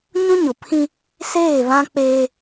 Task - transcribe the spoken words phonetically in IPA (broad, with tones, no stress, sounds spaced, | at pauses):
ɲ ũ˦ ɲ ʊ˨ pʰ ĩ˦ | s eː˦˨ β ã˦ k͡p eː˦